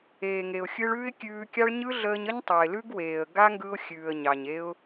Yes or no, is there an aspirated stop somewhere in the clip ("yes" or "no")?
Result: no